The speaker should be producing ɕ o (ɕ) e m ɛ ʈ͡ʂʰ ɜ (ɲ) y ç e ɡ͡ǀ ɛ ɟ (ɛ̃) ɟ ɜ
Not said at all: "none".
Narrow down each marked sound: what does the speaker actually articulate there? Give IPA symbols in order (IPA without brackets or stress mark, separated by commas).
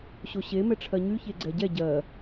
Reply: ɕ, ɲ, ɛ